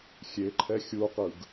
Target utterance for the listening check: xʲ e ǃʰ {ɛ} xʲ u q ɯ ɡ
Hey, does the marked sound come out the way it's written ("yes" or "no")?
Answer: yes